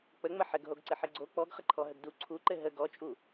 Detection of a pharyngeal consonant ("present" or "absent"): present